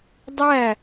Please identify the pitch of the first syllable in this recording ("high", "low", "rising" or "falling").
falling